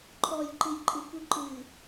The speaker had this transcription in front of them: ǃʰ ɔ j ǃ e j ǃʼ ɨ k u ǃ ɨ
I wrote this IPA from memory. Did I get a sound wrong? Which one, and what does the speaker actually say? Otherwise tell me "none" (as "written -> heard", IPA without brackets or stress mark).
e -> ɨ